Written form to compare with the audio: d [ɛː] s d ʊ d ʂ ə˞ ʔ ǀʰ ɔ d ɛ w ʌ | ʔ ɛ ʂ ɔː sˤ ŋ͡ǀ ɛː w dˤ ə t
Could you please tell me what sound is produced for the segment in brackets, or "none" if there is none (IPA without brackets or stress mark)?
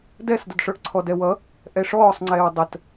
ɛ